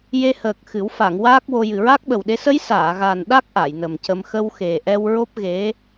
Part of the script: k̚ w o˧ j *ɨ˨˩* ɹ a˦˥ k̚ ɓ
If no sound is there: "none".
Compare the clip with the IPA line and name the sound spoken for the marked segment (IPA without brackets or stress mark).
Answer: ɨ˨˩